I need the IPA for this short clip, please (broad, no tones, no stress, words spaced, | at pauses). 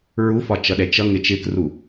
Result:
ɹufɒt͡ʃʌɗɛ t͡ʃʌŋɪ t͡ʃɪkru